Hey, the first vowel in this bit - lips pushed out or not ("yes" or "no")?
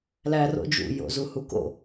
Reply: no